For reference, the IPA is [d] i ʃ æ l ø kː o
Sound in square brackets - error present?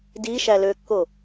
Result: no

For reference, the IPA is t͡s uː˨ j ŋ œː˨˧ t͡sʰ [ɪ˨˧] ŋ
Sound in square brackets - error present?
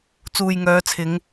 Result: no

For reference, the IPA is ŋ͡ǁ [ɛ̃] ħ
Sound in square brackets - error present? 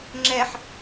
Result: yes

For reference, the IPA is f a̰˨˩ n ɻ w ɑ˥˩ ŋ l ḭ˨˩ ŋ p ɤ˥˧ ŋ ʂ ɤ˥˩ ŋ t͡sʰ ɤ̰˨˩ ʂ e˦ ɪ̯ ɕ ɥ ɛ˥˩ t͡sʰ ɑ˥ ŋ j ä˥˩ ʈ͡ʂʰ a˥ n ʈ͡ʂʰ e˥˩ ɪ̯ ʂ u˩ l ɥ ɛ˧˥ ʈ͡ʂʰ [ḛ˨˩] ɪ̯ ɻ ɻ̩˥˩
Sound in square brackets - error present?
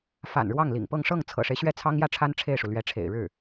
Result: no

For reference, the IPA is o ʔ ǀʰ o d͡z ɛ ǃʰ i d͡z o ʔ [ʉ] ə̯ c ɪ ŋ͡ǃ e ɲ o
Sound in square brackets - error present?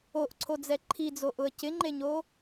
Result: yes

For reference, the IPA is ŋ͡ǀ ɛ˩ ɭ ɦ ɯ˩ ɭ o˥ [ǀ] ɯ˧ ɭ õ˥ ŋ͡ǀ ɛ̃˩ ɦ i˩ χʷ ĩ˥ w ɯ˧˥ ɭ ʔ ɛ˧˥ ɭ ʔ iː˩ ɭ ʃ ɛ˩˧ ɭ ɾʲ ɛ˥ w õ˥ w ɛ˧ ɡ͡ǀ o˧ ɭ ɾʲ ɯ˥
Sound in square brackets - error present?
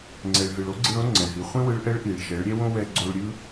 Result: yes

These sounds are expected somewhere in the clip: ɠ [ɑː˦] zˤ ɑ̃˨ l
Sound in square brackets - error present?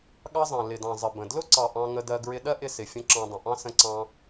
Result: yes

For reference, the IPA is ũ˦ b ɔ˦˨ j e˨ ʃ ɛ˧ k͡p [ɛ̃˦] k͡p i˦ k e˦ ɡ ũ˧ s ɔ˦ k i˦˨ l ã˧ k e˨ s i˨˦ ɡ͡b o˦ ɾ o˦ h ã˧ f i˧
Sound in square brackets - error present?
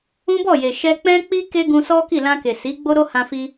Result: no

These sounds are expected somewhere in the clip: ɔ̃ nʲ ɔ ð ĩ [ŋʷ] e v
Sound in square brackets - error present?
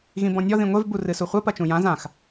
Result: no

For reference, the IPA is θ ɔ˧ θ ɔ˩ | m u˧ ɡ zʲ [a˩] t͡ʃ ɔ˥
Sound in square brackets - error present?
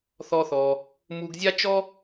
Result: yes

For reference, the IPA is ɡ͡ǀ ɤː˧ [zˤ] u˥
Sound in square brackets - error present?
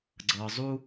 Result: no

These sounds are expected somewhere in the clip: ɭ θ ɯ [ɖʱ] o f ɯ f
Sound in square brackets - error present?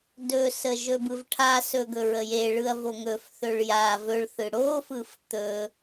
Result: yes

